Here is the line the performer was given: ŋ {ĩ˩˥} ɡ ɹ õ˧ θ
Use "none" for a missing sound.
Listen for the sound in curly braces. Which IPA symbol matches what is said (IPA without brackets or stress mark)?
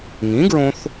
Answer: ĩ˩˥